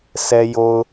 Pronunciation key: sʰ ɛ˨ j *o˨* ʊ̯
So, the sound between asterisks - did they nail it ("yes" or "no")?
yes